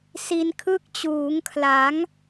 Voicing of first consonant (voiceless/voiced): voiceless